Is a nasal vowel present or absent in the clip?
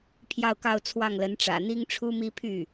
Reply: absent